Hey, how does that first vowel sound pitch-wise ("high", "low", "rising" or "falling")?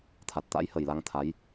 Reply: low